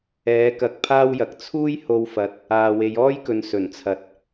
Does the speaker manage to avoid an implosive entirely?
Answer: yes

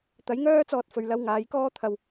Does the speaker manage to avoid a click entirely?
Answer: yes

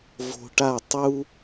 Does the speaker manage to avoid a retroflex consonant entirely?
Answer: no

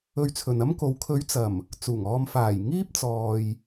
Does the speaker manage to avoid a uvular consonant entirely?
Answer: yes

